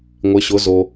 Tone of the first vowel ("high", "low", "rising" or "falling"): rising